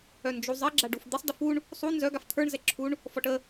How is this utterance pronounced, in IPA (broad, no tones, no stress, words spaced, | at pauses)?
œnd͡ʒuzˤɪ ɡ͡ǁaɖufd̪ɪsˤ dəfuɳ | sˤu nzœ ɡaft̪ʰə˞ɳ zɛǁʰuɳ | fɔʈə